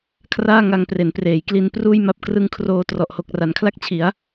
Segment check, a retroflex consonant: absent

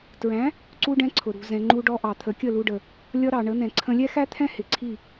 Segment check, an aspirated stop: present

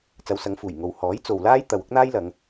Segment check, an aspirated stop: absent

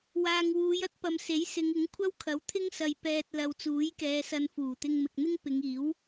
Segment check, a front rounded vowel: absent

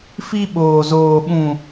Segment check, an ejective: absent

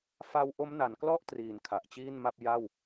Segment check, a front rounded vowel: absent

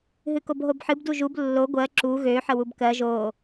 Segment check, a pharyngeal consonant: present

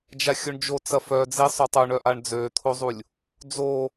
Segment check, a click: absent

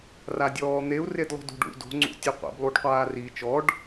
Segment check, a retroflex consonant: present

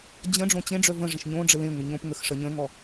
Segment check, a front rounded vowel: present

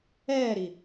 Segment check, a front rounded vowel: absent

